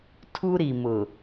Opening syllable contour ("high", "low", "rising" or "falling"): high